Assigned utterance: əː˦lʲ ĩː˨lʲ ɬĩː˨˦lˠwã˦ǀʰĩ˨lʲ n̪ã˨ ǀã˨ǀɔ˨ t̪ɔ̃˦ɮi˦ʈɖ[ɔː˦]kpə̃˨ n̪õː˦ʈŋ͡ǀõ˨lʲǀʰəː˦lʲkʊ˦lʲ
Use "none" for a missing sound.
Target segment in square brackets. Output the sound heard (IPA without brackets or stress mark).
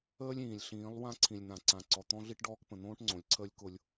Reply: ɔː˦